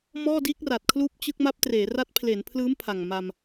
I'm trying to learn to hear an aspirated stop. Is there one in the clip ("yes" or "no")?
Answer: yes